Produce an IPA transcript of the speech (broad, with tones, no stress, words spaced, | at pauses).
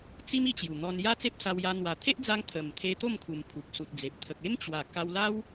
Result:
t͡si˦m i˧t͡ɕju˨˩ n̪ɔ˧n ja˦t͡se˦p̚sa˧wja˧ n̪wa˨˩t̪ʰe˦ʔd͡za˧ŋ t̪ʰə˨˩m t̪ʰe˧ t̪o˥˧mkʰu˨˩m pʰu˨k̚su˨t̚d͡ze˨p̚ t̪ʰə˨k̚ e˦mt͡ɕwa˨˩ ka˧wla˦w